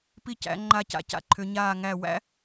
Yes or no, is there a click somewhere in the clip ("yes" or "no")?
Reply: yes